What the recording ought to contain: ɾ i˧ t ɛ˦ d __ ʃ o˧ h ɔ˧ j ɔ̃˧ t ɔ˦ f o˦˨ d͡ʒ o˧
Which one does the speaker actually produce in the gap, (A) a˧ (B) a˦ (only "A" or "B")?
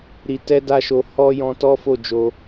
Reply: B